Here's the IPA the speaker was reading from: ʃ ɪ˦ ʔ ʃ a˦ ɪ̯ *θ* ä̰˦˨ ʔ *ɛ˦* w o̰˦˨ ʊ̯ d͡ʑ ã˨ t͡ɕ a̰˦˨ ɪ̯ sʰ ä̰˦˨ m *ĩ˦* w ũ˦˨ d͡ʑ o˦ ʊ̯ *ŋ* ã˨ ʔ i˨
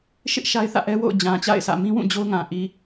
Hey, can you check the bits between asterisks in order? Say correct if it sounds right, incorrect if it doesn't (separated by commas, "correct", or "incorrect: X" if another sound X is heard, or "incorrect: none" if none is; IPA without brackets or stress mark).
correct, correct, correct, correct